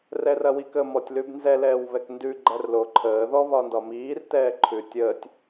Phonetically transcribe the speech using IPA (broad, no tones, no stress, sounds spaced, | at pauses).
r ɛ r ɐ w i k ə m ɔ tʲ l ʉ b n z ɛ l ɛː w β ɛ k n d ʉ ɡ͡ǃ æ r l o ǃʰ əː ð ɔ β ɒ n d ɒ m iː r t ɛː ǃʰ ʉ tʲ ə tʲ